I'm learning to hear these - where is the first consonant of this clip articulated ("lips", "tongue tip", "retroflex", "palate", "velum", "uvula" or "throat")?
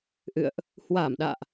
throat